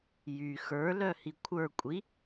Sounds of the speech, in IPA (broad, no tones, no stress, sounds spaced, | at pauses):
j y x ə˞ l œ h i kʷʰ ə˞ kʷʼ i